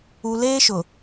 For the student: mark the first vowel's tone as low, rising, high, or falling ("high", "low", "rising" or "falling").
low